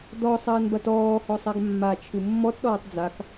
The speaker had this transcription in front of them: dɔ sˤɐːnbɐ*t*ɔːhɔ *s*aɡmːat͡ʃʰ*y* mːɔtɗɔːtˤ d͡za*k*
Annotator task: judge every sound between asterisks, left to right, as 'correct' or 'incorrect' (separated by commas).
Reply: correct, incorrect, incorrect, correct